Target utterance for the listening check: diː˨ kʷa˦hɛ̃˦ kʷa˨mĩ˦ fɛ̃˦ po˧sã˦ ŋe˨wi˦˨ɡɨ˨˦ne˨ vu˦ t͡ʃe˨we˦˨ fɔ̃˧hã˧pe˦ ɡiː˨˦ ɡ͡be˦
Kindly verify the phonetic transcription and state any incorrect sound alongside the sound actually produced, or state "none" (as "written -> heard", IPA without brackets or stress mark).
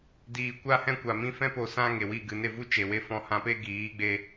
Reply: none